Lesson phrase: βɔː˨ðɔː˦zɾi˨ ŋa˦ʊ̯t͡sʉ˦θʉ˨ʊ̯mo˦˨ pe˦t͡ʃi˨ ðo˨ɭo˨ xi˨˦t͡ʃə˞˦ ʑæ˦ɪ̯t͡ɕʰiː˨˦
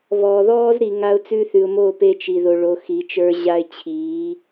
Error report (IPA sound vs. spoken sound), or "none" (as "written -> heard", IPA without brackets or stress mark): æ˦ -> a˦